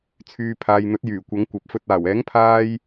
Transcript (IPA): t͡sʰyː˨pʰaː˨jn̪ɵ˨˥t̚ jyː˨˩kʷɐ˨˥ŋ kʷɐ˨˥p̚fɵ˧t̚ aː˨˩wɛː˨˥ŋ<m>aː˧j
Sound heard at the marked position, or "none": pʰ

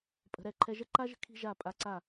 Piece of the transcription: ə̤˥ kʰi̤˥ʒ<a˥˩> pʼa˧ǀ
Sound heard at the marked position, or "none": a˥˩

